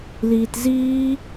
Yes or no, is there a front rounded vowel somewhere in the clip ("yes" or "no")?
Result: no